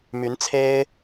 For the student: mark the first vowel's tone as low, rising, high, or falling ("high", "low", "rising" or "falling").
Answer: rising